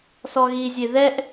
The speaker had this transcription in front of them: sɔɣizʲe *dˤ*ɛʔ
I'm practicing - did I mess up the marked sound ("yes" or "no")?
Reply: yes